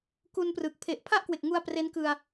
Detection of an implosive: absent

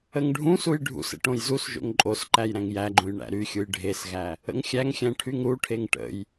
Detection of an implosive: absent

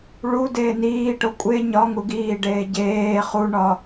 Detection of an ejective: present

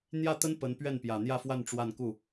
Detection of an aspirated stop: absent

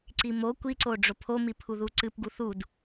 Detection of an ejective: absent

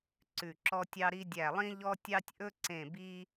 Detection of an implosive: absent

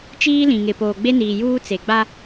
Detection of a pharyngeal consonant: absent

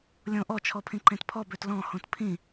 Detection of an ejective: absent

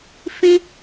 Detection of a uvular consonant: absent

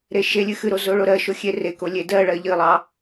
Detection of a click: absent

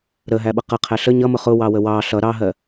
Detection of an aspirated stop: present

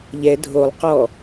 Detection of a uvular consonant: present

